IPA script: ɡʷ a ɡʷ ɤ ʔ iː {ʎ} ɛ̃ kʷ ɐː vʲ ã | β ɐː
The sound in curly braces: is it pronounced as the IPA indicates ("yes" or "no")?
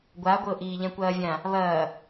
yes